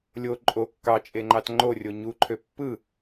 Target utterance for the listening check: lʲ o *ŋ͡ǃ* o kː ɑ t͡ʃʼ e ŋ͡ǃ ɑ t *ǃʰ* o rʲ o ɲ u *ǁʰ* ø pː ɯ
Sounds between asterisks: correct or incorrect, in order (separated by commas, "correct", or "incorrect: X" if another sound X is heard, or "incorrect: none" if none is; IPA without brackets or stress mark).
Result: incorrect: ǃʼ, incorrect: ŋ͡ǃ, incorrect: ǃʰ